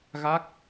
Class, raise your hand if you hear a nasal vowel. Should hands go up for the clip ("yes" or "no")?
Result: no